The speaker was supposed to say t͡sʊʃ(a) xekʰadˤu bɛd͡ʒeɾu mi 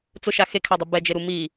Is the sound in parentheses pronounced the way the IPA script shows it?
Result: yes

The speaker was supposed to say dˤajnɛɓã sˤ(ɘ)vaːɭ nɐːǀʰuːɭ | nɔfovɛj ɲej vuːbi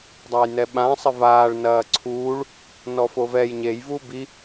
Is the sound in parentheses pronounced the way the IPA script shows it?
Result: yes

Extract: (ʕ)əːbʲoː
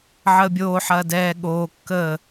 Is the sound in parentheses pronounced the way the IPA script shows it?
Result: yes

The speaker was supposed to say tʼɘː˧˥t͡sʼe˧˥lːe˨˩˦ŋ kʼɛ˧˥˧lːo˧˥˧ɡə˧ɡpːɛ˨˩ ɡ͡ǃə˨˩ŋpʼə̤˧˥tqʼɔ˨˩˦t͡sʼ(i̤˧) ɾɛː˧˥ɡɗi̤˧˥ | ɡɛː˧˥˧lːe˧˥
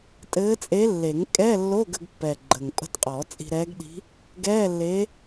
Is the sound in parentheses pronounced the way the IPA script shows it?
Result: yes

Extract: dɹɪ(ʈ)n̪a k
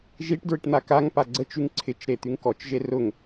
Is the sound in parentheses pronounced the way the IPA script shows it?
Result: yes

